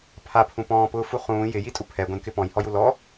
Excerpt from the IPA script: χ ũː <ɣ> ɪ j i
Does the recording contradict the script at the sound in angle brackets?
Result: yes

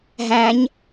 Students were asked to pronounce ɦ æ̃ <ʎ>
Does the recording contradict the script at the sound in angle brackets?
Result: yes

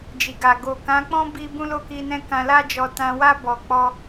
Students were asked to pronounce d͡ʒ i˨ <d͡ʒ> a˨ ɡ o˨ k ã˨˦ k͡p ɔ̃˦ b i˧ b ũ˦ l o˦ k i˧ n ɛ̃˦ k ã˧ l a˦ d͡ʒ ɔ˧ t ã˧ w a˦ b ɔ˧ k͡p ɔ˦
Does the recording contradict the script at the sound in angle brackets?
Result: yes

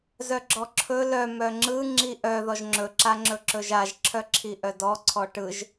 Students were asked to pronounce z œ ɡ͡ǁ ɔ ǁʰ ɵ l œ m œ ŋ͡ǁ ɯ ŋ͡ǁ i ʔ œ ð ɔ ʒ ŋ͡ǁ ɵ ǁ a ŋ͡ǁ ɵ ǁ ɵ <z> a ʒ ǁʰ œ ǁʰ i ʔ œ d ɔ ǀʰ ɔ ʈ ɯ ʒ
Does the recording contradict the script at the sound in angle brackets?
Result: yes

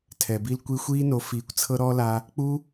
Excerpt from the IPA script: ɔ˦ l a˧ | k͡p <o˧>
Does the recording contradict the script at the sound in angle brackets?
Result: yes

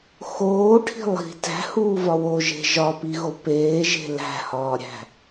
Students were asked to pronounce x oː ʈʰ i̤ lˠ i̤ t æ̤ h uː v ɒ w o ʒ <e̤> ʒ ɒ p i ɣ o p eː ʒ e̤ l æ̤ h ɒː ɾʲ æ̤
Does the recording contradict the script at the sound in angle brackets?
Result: no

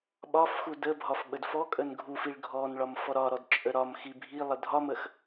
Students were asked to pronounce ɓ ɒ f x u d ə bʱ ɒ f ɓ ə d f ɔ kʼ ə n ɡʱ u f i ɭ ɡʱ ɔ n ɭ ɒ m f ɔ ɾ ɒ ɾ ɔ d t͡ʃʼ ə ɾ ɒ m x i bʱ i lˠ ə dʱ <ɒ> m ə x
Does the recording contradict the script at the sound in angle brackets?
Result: no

